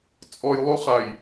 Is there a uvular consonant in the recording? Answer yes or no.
yes